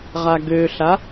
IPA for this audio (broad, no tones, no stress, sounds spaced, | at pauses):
ʁ a ɡ ø ɬ a